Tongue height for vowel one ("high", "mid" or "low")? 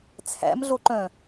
low